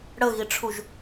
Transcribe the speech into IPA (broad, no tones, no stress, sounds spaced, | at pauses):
ɽ ə ɣ i ʈ͡ʂʰ u ʒ